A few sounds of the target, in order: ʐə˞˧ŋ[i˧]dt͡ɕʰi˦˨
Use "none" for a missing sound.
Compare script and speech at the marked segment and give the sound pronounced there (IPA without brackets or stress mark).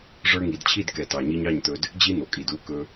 i˨